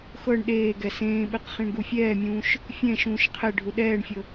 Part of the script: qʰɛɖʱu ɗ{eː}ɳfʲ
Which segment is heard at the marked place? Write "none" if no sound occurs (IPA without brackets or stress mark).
ɛː